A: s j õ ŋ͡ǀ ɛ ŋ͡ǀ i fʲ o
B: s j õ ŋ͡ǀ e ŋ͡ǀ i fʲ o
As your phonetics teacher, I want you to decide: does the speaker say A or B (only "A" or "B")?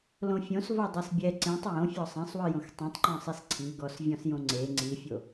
B